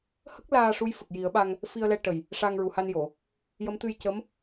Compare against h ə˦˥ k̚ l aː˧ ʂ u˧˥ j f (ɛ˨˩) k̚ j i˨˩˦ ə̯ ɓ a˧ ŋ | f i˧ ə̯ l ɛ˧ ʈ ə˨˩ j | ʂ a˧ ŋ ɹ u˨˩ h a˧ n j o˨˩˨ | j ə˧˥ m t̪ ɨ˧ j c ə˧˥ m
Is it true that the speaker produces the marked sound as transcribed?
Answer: no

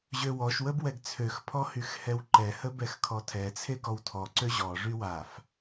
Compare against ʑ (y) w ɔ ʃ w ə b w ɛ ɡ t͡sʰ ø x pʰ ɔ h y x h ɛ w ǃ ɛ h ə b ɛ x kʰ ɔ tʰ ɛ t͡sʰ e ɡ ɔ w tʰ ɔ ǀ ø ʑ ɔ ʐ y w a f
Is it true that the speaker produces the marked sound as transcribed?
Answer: no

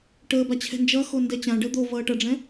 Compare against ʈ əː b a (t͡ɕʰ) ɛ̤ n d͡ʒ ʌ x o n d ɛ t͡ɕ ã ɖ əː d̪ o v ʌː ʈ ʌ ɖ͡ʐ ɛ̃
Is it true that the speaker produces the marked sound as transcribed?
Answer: yes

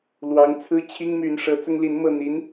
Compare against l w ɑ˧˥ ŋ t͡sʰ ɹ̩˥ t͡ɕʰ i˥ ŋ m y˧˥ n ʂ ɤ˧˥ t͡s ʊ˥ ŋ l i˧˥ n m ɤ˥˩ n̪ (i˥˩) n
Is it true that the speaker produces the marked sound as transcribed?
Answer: no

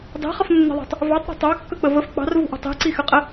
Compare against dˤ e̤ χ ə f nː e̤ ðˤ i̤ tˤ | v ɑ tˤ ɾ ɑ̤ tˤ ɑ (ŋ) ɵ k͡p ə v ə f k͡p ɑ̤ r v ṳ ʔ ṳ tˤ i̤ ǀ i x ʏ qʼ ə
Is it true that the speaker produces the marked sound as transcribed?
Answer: no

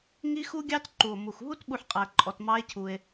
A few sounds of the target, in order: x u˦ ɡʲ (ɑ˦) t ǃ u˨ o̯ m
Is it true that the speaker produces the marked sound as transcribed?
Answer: yes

